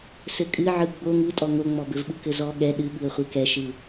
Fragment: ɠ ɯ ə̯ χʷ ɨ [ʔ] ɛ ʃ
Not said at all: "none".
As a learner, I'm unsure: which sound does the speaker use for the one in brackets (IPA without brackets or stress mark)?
k